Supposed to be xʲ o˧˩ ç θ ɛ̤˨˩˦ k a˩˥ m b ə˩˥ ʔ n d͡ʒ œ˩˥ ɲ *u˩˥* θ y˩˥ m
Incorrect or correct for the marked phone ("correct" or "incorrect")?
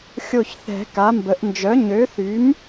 incorrect